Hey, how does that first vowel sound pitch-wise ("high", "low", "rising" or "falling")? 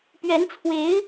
rising